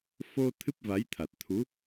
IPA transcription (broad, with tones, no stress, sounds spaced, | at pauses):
f o˧ t̪ʰ ɨ˦˥ p̚ v a˨˦ j t̪ʰ a˨˩ t̚ t̪ʰ u˨˦